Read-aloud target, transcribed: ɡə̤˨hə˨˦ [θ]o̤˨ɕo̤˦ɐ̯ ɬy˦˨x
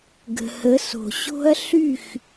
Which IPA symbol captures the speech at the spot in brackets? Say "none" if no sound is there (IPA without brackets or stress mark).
s